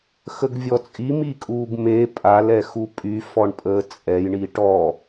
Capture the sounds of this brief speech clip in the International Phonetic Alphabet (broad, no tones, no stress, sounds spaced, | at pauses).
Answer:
x ə ɡ vʲ ɔ t͡sʼ i m i kʼ uː ɡ m e pʼ a l ɛ x u pʼ y f ɔ ɳ pʼ əː t͡sʼ ɛ j ɳ i ʈ ɔ